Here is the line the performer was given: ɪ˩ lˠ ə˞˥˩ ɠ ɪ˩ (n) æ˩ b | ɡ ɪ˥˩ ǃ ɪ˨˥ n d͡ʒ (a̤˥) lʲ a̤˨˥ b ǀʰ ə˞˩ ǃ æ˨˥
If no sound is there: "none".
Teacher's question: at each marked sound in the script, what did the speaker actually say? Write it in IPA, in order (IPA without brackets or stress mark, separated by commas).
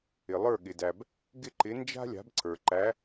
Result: d, a̤˥